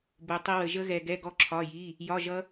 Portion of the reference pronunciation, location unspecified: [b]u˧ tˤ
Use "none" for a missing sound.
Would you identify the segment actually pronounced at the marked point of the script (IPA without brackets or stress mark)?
b